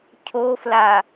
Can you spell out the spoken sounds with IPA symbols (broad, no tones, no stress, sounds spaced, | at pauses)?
cʰ o f l a